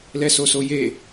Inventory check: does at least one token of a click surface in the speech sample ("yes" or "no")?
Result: no